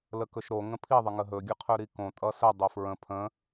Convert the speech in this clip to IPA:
l ə k ɵ ʃ ɾ o ŋ ə̃ pʰ i ðˤ ə ŋ ə ɦ ɵ ɡʲ ə qʰ ɵ ɾ i k õ tʼ ʌ s ə dˤ ɵ f ɹ ə̃ pʰ ə̃

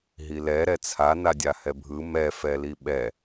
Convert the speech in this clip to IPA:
ɦ i l ɛ ɾ ɛ t͡sʰ a n a dʲ a h ɛ bʱ ɯ m ɛ f ɛ l i ɓ ɛ

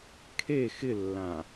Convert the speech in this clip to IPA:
kʰ e x ɪ lː ã

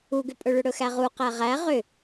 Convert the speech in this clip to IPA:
u ɡ ʏ pʼ ɵ ɭ ʏ ɽ ɵ x æ ʁ u q æ ʁ æ ʁ ʏ

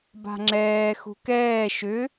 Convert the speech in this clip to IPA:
b a̤ ŋ͡ǁ ɛː x ṳ k ɛː ʃ ʏ

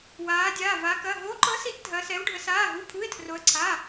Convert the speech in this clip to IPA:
w aː˧˥ dʲ aː˧˥˧ v a˧˥ k ɐ˧˥˧ ɦ o˧˥ ǃ ɤ˧˥ s i˧˥ ʔ dʱ ɐ˧˥ s ɛ˧˥ w ɖʱ ə˧˥ s aː˧˥˧ ɦ u˧˥˧ pʰ u˧˥˧ ɪ̯ tʰ r o˧˥ ə̯ ǀʰ a˧˥˧

